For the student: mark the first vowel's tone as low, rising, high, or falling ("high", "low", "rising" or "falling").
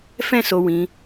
high